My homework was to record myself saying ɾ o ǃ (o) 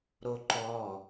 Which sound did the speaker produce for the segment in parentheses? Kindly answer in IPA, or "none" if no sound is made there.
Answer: ɔ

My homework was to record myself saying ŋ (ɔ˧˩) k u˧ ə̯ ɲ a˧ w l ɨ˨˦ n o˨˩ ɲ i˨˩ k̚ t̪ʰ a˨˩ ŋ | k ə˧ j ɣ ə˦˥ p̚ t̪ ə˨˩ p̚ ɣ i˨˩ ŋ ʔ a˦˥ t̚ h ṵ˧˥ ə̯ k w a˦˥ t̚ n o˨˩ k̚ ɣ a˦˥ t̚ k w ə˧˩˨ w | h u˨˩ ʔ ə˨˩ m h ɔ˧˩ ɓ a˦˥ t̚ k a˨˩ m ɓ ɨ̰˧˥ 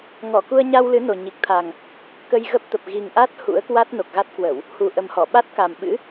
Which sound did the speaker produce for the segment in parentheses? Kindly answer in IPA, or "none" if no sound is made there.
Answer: ɔ˧˩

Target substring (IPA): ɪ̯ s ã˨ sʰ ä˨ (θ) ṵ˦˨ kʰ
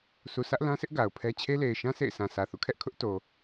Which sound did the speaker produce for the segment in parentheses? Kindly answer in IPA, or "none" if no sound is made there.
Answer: θ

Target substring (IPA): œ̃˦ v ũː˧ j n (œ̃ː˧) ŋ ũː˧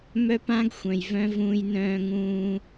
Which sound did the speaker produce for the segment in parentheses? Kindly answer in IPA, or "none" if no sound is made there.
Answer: œ̃ː˧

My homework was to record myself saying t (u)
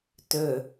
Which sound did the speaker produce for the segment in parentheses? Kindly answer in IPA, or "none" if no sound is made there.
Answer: ø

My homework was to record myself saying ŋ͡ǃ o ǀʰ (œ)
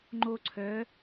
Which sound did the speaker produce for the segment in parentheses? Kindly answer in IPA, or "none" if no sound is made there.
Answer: œ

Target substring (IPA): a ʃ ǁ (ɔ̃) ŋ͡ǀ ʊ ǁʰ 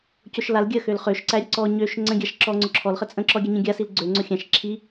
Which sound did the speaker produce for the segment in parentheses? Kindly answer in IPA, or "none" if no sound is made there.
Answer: ɔ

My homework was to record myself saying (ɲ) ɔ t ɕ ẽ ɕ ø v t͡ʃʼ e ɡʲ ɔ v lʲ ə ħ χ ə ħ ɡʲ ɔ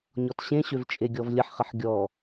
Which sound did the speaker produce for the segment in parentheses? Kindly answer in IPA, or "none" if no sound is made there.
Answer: ɲ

